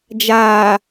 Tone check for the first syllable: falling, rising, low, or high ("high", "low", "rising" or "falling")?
low